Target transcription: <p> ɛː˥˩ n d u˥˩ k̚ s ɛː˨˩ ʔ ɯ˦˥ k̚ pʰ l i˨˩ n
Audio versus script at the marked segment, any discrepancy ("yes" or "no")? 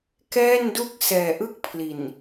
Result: yes